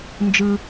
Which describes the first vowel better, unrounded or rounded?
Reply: unrounded